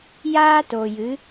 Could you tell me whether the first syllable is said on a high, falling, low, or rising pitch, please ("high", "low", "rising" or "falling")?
high